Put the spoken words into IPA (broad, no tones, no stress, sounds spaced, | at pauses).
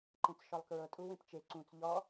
ǃ ẽ t͡s ʃ ɔ lˠ k ɹ ɤ tʼ u w ẽ p t͡ʃ e ǀ ũ t͡s ʎ ɔ